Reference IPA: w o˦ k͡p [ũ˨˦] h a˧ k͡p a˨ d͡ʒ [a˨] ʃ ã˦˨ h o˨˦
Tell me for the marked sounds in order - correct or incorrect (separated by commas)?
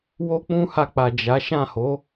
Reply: incorrect, incorrect